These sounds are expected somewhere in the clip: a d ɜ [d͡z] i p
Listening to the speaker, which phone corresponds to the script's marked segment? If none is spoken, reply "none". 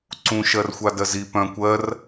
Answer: z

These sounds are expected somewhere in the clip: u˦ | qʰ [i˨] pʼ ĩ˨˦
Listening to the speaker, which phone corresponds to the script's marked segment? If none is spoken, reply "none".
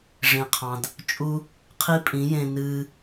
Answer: i˦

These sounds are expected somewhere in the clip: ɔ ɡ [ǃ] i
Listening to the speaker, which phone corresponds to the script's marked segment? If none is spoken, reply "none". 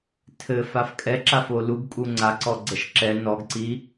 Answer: ǀ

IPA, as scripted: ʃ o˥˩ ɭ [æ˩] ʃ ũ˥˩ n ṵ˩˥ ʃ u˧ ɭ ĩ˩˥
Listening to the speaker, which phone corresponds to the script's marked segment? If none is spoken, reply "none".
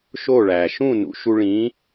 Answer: æ˩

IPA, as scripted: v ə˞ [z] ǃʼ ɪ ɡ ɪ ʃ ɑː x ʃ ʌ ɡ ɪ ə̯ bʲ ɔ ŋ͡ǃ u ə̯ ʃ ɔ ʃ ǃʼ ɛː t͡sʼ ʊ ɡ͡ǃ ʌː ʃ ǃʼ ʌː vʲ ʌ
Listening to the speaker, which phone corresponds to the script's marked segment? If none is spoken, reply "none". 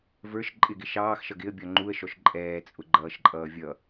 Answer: ʃ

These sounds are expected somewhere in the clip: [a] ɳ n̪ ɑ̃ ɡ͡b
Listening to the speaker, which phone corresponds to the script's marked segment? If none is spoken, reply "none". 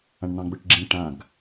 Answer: ã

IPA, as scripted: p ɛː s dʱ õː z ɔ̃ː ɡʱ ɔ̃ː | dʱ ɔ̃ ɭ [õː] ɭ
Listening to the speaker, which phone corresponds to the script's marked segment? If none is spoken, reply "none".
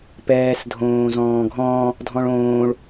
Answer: õː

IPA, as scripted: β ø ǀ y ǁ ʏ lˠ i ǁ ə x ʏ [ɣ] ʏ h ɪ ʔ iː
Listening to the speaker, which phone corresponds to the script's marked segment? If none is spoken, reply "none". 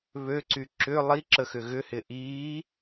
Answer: ɣ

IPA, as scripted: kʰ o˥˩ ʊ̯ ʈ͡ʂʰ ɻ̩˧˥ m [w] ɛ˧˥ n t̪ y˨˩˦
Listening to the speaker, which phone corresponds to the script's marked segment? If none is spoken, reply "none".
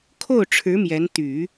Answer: j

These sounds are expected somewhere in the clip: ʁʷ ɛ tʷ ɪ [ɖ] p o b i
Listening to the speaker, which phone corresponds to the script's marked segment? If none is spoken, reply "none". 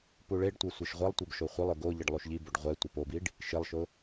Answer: none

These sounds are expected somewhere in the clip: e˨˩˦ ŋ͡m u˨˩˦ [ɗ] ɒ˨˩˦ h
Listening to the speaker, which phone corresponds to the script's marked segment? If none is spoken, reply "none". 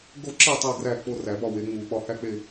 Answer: ɓ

